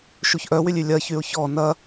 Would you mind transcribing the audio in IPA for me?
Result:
ʃ u ç ʔ œ w y lʲ y lʲ ɐ ç y ʊ̯ ç ɔ n ɐ

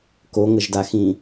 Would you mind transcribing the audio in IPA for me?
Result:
k o ŋ ə ʒ d a x ĩ

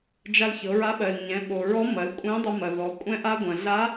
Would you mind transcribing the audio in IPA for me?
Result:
d͡ʒ a˧ l ç ɤ˩˧ ɹ a˧˥ ɓ ɜ˩ l ɲ ɛ̃˩˧ ɓ o˩ ɹ ɔ˧˥ m ɐ˩˧ l kʷʼ ɛ̃˧˥ dˤ ɐ˧ m ɐ˩ ð ɔ˩˧ kʷʼ ɛ̃˧ ʔ a˧ ɡʷ ɐ̃˩ ɮ a˧˥

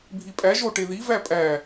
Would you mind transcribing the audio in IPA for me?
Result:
bʱ i pʼ æ ʒ o ʈ e ð i v æ pʼ æ

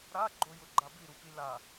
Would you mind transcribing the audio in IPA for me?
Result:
ɾ a ɡ͡ǃ o j ʊ ɡ͡ǃ a b i ɾ u p i l a

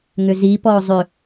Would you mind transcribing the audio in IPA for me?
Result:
ŋ ʏ z i p ɔ ʊ̯ zˤ ʏ

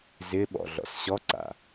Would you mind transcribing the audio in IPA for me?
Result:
z ɪ ɓ ɔ̰ ɮ ɔ̰ s ɕ ɔ ǀ a̰

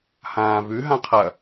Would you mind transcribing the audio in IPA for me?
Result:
h ãː v ʉ ɦ ã qʰ ɐ

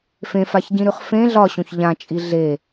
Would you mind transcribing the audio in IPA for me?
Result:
f ẽ f a ç ɟ ĩ ɾ ʉ χ f ẽ ɮ ɒ ɕ õ ç ʎ ã t͡ʃʼ i ɮ e

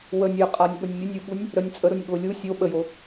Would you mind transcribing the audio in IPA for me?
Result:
w ə nʲ j ə qʼ a nʲ ɠ ʊ nʲ mʲ ə nʲ u ɠ u nʲ | ɾ ə nʲ t͡sʼ ə ɾ ʊ nʲ ɠ ʊ lʲ u sʲ o ɓ ə j o

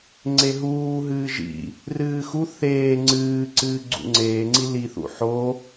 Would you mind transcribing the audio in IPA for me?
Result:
ŋ͡ǀ e ɦ uː ɦ ɨː ʒ ḭ | r ɨː x u θ eː ŋ͡ǀ ɨː ǀ ɨː ɡ͡ǀ ṵ ŋ͡ǀ eː ŋ͡ǀ i l i θ ṵ ħ o

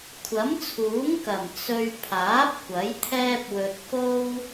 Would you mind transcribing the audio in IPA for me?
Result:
kʷʰ ɐ˨˥ m t͡sʰ uː˨˥ ŋ k ɐ˨˩ m t͡s ɵ˧ ɥ pʰ aː˨˥ p̚ kʷ ɐ˨˥ j t̪ʰ ɛː˥ p̚ w ɵ˧ t̚ k o˥ w

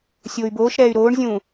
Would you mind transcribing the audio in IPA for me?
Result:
sʲ oː y̯ b oː ʃ ɾ ɛː y̯ ɾ oː ɳ zʲ ũː

